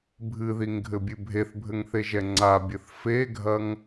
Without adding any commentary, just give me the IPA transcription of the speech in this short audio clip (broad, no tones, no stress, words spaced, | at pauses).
bʱɨðiŋɡʱɘbʲɨ bʱeθbʱɘŋθeʒɛ ŋ͡ǀabʲɘθ feɡʱɐŋ